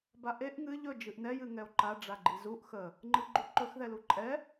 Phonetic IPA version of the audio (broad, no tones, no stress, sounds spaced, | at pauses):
b a ʔ e ʔ ŋ ɨ ʎ ɵ d͡ʒ ɨ ʔ n ɛ j ɨ ŋ ɛ o̯ ǃ a ɖ͡ʐ a ɡ͡ǃ i z u ʔ x ə | ŋ͡ǃ ɨ ɡ͡ǃ u ǃ ɵ x ð ɛ l u ǃʼ ɛ